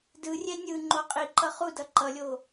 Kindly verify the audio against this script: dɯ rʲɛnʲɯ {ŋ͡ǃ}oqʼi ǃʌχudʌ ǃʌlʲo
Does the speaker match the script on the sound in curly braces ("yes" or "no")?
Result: yes